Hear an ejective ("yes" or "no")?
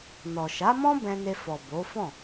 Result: no